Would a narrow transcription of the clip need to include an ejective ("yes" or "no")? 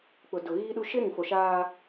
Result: no